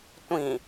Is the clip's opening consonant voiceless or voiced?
voiceless